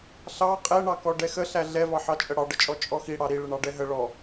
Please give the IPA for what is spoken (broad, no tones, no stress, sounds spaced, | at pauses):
ɬ ɑ qʼ ɛ ɳ ɑ k ɔ ɖ ɛ x ə ɬ æ ɮ ɛ v ɑ ħ ɑ t͡ʃʼ ə ɽ ɑ ɖ ə t͡ʃʼ ɔ t͡ʃʼ ɔ x i ɽ ɑ ɾ i ɭ ə ɳ ɑ ɖ ɛ ɦ ə ɭ ɔ